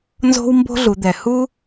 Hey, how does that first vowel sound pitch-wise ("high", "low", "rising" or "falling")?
high